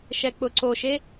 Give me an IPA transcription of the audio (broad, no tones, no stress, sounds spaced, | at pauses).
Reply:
ʃ ɛ k͡p ʊ ǀ o ʃ e